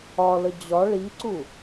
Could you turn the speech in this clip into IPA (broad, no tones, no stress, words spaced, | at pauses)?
ɒlə d͡ʑɒ ɭiǀu